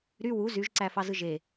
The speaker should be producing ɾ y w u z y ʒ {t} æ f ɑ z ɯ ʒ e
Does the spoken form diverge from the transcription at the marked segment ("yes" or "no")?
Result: yes